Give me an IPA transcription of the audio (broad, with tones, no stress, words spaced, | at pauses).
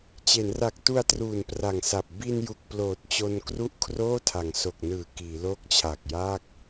t͡ɕe˩˦nra˨˩k̚tu˧a̯ truː˨˩npra˨˩ŋsa˨˩p̚ bi˧n ju˨˩k̚ploː˨˩t̚t͡ɕo˧n kru˥˩ʔkʰroː˥˩tʰa˩˦ŋ so˨˩k̚nɯː˨˩ kiː˩˦loː˦˥k̚t͡ɕʰa˨˩k̚jaː˥˩k̚